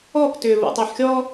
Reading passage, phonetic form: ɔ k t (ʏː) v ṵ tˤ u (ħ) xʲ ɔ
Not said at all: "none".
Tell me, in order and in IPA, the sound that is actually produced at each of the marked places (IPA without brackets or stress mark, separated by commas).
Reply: ʏː, ħ